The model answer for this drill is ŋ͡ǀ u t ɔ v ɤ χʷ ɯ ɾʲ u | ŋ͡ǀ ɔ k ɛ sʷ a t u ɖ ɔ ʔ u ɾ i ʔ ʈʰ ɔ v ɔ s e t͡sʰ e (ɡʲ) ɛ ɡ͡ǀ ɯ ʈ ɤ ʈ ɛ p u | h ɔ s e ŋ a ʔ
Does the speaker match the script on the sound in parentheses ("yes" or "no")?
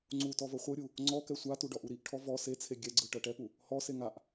yes